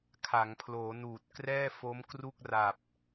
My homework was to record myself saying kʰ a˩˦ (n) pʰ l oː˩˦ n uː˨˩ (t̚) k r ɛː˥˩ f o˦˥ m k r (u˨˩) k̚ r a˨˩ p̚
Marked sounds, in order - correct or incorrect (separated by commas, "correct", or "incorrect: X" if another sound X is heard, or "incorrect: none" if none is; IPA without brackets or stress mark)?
incorrect: ŋ, correct, incorrect: u˥˩